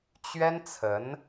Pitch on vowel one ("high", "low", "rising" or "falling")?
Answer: high